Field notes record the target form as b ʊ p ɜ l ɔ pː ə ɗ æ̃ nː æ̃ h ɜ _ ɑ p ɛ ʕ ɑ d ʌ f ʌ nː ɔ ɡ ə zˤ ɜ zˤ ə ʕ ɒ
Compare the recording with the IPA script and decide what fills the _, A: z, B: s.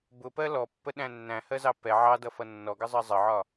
A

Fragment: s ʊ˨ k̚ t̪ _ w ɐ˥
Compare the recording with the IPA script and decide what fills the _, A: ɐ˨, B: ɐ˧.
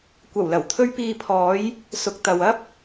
A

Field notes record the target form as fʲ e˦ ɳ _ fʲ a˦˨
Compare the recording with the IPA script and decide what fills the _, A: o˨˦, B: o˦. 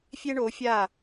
A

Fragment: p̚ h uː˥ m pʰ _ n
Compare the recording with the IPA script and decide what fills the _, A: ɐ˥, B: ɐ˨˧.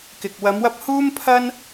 A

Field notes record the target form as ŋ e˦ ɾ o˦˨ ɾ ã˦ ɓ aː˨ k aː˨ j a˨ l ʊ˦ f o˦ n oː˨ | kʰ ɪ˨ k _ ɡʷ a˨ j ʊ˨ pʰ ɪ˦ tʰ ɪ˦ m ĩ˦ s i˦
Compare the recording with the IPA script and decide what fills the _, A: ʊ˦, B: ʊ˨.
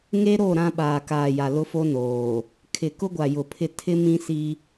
A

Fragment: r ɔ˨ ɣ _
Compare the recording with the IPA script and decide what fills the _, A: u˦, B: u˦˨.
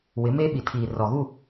B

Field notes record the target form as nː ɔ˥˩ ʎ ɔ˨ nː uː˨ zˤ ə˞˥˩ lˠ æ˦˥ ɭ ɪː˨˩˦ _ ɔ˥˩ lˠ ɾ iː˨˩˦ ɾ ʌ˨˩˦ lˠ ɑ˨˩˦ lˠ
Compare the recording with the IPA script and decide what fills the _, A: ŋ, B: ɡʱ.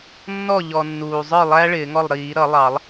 A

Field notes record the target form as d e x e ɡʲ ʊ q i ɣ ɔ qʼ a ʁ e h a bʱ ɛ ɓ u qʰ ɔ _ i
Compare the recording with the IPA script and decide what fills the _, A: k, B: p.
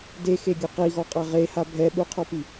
B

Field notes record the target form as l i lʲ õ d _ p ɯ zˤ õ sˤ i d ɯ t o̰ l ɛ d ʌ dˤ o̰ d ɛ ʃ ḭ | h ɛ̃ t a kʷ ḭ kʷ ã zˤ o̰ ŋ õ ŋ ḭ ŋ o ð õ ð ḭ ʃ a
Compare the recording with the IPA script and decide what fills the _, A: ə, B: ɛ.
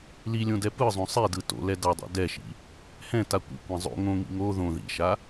B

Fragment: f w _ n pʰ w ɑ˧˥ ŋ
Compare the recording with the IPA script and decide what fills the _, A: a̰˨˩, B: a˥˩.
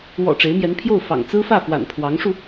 A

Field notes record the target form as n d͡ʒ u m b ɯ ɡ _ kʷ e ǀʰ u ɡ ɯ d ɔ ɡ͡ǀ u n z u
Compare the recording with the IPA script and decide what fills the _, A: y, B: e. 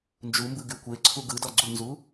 A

